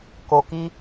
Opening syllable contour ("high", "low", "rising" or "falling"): low